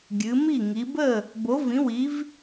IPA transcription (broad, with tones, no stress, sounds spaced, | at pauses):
ɡʲ ɨ˨˦ m i˥˨ ŋ i˨˦ b ə˥˨ | b o˨˦ v ĩ˨˦ w i˨˦ v